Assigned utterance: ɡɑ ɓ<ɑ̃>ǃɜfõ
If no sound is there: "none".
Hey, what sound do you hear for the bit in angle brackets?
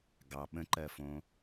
ə̃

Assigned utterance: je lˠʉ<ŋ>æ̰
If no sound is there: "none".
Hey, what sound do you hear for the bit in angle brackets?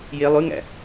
ŋ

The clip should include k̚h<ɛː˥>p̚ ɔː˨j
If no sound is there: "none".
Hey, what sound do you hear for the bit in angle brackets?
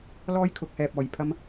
ɛː˨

